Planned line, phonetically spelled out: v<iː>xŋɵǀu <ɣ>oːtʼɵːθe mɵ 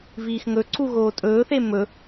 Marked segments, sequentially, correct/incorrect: correct, correct

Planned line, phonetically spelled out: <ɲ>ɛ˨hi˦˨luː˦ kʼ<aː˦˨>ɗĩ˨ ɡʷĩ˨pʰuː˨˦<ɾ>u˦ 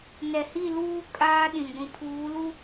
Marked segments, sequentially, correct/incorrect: incorrect: n, incorrect: aː˦, incorrect: l

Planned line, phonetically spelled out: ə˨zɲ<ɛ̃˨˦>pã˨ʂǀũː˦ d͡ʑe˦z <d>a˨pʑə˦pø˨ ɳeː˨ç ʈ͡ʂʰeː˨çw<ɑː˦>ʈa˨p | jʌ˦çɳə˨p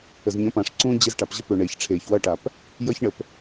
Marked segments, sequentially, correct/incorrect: incorrect: ə̃˨˦, incorrect: ʈ, incorrect: ʌː˦

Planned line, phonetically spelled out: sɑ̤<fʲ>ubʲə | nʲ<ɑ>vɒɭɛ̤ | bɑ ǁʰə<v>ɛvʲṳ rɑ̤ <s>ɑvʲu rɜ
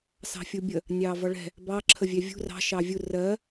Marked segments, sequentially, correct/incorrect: correct, correct, incorrect: vʲ, incorrect: ʃ

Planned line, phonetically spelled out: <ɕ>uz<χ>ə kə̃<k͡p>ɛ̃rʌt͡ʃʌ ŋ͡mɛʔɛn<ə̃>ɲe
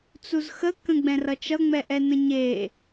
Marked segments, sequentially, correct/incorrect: incorrect: t͡s, incorrect: x, incorrect: ɡ͡b, correct

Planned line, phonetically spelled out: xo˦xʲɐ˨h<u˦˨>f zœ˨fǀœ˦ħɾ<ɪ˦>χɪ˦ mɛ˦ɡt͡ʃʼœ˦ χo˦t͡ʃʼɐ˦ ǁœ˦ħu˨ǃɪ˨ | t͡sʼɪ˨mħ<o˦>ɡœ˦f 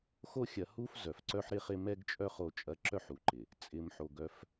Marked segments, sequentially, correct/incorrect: incorrect: u˦, correct, incorrect: o˨

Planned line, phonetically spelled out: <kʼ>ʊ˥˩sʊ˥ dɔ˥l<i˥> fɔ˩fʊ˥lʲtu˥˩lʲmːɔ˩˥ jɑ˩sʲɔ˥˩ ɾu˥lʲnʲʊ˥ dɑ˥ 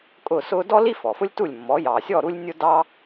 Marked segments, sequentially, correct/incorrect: correct, correct

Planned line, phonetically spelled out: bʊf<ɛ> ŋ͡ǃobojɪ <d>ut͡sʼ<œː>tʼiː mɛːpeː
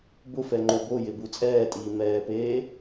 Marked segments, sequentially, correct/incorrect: correct, incorrect: b, incorrect: ɛː

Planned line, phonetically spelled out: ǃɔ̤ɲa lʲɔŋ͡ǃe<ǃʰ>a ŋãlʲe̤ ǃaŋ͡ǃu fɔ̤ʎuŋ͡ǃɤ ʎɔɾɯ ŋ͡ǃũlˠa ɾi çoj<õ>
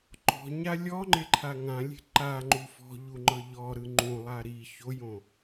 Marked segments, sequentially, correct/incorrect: correct, correct

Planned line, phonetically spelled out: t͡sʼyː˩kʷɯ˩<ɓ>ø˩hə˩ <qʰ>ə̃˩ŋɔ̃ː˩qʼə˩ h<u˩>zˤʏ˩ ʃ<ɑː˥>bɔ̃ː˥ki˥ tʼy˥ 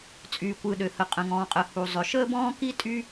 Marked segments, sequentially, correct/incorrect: incorrect: ɗ, incorrect: qʼ, correct, incorrect: əː˥

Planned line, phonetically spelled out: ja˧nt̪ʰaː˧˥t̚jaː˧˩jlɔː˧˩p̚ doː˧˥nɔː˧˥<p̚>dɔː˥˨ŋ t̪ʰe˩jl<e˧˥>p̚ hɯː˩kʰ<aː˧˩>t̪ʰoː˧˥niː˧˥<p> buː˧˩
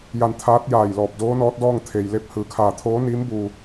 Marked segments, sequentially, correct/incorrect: incorrect: t̚, correct, correct, incorrect: m

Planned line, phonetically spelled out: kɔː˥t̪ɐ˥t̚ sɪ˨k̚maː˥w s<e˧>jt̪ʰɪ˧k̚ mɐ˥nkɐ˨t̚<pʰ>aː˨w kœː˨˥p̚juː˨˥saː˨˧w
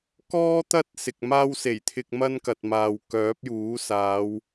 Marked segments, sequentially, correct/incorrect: incorrect: e˨˩, incorrect: m

